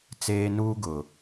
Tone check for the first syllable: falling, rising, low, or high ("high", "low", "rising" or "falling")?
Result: high